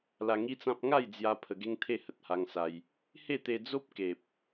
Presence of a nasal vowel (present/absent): present